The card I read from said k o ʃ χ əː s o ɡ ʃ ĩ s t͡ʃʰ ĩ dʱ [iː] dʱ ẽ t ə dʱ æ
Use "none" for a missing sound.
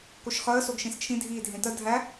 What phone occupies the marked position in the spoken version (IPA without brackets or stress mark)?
iː